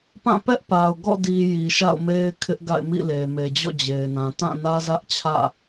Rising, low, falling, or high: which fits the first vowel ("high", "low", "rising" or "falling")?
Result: falling